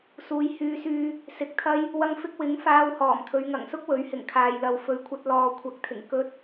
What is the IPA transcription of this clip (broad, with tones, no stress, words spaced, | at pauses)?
suː˧j hyː˧syː˧ | sɪ˨k̚t̪ʰɐ˧j | wɐ˧ŋfɪ˧k̚wɪ˨˥ŋ faː˧whɔː˨˩mt̪ʰɵ˨˧ɥ ŋɐ˨˩ŋsʊ˥k̚wɵ˨˥ɥ hɪ˨˩ŋkʰaː˨jlɐ˨w fɵ˨˧ɥkʷʰɐ˧t̚ lɔː˨kʷʰɐ˨˥k̚t̪ʰɪ˨˩ŋ kɵ˧t̚